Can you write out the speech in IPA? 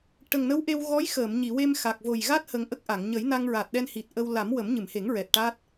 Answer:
ʈə˨˩ŋnə˧˥wʔe˧w ɣɔ˧˥jxəː˨˩˨m ɲi˨˩˨we˧mxa˨˩k̚ vo˨˩jɣa˦˥t̚ hə˨˩ŋ ʔə˦˥k̚ʔa˨˩˨ŋ ɲə˨˩˦jna˧ŋɹa˨˩t̚ɗɛ˧n hi˨˩t̚ʔə˧w la˨˩˦mwə˨˩˦m ɲɨ˨˩˨mhe˨˩˦ŋɹɛ˨˩t̚ ʈa˦˥t̚

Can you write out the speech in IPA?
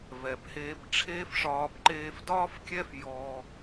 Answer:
vɛ˨bheː˧b ʈ͡ʂʰeː˦fʂɒː˧b ǃeː˧fdɒː˦fkʲɛ˦f jɔː˧

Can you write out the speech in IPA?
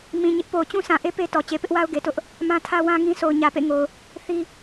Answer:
mĩ˨ɲɪ˦ʔ po˨ʊ̯t͡ɕũ˦sã˨ʔe˦ pe˦tɔ˨ t͡ɕe˨pɪ˦ʔwa˦ʊ̯ɡe˨ tʊ˦ʔ | mã˦tʰä˦wã˦ŋĩ˦ sʰo˨ʊ̯ɲä˨pḛ˦˨ŋo˨ʊ̯ | θi˦

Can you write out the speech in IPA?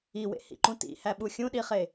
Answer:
iwḛhḭǃũ tḭhæɓu xʲũɗiχe

